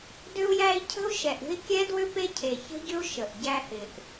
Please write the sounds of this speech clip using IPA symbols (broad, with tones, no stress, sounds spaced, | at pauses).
d ʏ˦ u̯ j æ˦ i̯ cʰ ə̤˦ u̯ ʃ ɛ˨ ʔ ɾʲ ə̤˦ i̯ kʲ ɛ˦ d w ʏ˦ p e˦ cʰ e˨ ç ə̤˦ ɟ ʏ˦ u̯ ʃ ə˨ ʔ ɟ æ˦ h ɪ˨ ʔ